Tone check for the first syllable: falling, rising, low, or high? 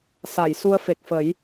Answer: low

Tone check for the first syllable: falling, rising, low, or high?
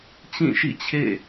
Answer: falling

